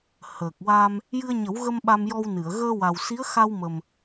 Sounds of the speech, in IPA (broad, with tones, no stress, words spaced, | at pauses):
həː˨˩k̚wa˧m | jɨ˧ə̯ɲə˨˩˦wɣə˧m ɓa˧mjɔ˧wnɨ˨˩˨ə̯ ɣəː˧wa˨˩wsi˧˥ə̯ xa˧wmə˨˩m